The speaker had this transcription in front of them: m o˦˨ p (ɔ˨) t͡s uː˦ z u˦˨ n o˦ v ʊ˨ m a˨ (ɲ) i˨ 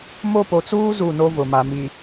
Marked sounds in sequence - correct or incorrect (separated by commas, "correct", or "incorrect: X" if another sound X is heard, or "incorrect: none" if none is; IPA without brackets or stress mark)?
incorrect: o˨, incorrect: m